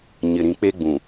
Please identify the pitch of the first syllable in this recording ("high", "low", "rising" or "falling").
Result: low